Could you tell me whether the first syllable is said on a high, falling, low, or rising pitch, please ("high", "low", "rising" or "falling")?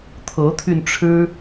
rising